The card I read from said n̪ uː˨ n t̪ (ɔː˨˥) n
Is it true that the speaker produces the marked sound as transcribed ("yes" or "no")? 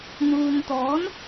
yes